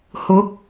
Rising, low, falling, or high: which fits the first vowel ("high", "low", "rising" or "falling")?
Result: rising